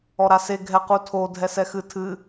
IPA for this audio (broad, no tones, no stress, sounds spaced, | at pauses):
ɔ ɾ a s e ɡʱ ɛ q u tʰ o dʱ ɛ s ɛ x ɨ tʰ ɨ